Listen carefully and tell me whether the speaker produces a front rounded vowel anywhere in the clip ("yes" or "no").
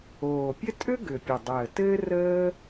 yes